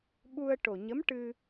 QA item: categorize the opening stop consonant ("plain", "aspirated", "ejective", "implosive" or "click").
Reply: implosive